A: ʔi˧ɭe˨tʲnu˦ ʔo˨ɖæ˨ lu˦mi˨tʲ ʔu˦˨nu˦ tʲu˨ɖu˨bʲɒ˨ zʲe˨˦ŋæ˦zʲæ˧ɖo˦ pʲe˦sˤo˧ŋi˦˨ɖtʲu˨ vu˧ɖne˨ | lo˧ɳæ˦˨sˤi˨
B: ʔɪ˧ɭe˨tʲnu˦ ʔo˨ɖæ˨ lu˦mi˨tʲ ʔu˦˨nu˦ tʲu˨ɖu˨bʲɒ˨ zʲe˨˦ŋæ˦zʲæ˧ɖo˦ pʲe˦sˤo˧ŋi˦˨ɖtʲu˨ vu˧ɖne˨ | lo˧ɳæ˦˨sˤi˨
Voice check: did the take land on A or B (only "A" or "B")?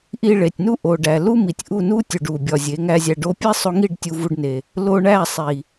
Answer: A